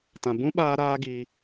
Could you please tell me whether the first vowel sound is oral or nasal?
nasal